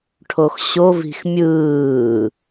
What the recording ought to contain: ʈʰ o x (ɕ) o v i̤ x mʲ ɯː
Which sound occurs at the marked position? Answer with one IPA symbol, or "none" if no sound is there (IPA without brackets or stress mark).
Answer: ɕ